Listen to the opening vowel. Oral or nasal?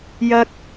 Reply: oral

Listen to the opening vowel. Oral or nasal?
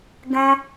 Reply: nasal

